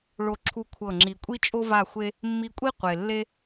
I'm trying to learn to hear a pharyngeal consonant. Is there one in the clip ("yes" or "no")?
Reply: no